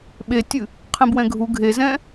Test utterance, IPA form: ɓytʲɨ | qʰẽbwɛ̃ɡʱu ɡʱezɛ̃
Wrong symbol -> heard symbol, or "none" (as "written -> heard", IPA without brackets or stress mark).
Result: y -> e